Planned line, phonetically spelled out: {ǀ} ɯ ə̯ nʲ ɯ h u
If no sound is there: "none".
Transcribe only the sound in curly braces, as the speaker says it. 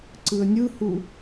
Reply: ǀ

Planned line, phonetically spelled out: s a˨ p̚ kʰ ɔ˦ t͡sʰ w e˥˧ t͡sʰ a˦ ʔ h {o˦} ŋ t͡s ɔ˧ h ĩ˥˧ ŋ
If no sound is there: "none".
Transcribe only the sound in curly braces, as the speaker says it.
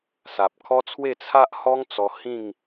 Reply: ɔ˦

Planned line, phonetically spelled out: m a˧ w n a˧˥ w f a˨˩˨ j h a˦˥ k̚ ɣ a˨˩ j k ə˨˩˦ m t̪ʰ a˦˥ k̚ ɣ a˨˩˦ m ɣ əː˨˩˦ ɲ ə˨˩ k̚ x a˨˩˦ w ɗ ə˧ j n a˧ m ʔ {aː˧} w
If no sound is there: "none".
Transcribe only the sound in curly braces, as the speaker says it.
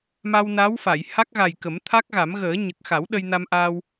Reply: aː˧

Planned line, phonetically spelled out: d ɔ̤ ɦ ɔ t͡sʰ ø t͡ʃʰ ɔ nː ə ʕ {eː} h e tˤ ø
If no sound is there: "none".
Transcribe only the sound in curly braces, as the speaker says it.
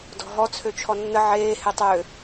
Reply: eː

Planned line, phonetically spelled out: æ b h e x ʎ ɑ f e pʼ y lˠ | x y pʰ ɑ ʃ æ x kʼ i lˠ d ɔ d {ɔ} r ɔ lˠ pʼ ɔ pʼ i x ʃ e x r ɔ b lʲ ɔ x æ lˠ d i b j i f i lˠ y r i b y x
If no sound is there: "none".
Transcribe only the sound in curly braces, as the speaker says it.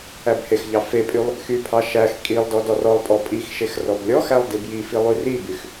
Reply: ɔ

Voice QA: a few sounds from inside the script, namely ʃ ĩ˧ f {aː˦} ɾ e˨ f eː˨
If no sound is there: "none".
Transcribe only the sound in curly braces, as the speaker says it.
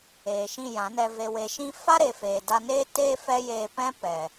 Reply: a˦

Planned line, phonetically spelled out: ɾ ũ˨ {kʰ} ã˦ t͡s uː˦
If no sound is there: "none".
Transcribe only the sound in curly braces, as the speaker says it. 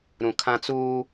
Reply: kʰ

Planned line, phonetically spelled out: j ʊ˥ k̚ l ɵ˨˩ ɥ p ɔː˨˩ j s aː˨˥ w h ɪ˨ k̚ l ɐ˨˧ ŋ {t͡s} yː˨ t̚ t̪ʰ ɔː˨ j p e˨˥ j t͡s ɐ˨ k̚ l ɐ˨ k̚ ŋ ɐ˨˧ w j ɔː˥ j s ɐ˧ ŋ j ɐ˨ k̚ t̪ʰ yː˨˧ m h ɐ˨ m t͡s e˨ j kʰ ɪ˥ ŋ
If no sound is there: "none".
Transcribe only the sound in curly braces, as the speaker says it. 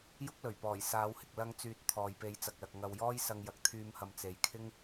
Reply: t͡s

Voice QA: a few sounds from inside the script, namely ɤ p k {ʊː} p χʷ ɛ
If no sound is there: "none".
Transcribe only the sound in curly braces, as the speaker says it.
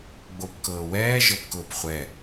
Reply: ʊː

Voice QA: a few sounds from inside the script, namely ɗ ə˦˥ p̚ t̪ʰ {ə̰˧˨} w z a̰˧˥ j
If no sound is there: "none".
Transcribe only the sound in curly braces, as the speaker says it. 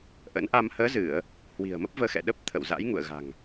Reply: ə̰˧˨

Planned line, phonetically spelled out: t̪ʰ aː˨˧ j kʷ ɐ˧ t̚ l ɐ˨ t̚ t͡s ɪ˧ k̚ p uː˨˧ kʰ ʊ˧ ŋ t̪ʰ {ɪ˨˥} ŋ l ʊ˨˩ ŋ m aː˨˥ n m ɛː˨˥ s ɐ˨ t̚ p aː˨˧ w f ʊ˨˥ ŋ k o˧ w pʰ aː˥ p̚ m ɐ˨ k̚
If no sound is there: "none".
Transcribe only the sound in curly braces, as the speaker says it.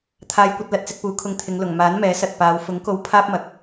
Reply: ɪ˨˧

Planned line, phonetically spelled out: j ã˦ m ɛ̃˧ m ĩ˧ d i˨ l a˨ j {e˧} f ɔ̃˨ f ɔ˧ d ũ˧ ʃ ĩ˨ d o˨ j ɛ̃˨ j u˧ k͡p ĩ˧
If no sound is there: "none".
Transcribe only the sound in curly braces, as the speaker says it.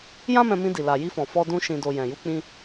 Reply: i˧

